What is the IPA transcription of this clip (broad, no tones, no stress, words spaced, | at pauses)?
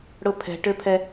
ɽʊpʰɛ̤ʈøpʰɛ